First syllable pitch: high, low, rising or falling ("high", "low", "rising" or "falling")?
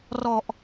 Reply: low